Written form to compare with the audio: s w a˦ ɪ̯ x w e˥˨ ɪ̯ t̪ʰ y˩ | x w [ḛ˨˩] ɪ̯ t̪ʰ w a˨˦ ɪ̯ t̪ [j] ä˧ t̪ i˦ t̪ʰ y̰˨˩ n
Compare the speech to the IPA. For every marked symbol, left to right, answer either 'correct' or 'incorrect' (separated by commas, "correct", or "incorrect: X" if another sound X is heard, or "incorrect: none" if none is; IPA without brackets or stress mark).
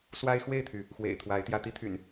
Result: correct, correct